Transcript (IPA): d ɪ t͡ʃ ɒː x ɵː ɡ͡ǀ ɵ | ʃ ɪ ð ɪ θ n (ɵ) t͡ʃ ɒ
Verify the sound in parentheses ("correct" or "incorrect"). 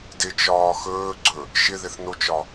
incorrect